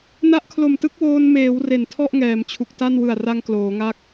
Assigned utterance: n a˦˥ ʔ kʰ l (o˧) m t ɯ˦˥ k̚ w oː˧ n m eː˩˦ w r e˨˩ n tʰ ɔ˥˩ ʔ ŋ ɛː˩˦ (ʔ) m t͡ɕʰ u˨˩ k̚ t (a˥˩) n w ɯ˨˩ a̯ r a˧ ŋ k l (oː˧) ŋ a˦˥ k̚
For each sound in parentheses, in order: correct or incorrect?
incorrect: o˨˩, incorrect: none, correct, incorrect: oː˩˦

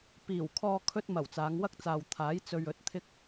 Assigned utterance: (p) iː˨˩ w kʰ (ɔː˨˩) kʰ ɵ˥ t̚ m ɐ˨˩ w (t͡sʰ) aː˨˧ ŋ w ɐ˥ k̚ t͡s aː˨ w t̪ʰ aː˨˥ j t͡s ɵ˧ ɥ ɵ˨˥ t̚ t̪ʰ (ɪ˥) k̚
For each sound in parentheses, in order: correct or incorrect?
correct, incorrect: ɔː˧, incorrect: t͡s, correct

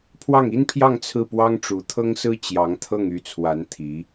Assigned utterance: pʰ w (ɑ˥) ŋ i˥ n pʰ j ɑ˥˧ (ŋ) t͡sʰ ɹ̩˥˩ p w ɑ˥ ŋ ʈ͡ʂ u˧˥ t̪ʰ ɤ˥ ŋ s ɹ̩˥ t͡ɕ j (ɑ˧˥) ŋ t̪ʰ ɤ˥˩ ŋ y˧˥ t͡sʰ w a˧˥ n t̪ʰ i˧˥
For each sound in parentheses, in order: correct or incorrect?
incorrect: ɑ˥˩, correct, correct

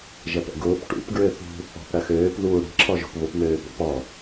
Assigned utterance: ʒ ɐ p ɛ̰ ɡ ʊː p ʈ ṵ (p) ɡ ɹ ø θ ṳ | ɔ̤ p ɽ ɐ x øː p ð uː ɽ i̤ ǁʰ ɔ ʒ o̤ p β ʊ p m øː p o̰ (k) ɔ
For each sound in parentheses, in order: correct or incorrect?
correct, incorrect: p

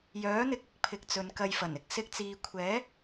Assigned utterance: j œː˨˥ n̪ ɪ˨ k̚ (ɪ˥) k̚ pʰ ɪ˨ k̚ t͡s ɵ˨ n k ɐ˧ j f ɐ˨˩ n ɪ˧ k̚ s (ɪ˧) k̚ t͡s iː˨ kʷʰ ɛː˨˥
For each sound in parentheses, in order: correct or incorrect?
incorrect: ɪ˧, correct

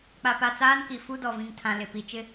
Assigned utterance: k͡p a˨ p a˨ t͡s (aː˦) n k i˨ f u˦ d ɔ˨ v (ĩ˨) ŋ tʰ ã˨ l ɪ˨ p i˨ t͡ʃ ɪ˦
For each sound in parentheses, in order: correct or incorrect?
correct, correct

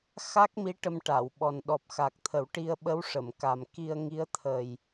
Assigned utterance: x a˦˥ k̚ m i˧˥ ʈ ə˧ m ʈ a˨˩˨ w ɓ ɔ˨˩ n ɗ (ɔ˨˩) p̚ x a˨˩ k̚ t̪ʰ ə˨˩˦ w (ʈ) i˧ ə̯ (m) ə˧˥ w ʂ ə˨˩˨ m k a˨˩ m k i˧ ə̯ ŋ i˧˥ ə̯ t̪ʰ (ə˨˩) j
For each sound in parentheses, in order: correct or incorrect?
correct, correct, incorrect: ɓ, correct

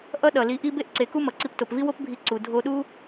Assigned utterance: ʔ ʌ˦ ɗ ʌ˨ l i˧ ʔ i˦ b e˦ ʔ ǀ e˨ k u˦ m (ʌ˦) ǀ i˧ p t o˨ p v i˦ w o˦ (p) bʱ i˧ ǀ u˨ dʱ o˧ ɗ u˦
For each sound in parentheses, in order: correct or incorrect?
incorrect: ʌ˨, correct

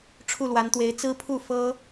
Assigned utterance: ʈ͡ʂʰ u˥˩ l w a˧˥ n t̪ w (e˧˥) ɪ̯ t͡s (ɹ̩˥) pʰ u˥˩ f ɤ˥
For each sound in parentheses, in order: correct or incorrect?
correct, correct

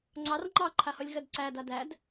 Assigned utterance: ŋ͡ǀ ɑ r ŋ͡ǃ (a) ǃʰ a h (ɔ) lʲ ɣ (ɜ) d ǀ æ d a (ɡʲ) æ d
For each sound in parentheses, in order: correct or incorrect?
incorrect: ɑ, correct, correct, incorrect: d

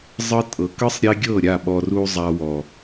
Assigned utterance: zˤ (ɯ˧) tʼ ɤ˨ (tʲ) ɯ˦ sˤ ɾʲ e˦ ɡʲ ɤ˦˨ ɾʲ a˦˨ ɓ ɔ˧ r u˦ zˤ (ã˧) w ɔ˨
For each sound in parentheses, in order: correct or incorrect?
correct, incorrect: k, incorrect: a˧

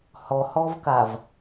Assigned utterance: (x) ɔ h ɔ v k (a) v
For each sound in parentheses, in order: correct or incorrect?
incorrect: h, correct

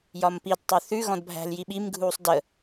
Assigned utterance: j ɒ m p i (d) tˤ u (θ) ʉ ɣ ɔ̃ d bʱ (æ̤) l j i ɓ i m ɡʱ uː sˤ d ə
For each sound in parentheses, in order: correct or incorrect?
correct, correct, correct

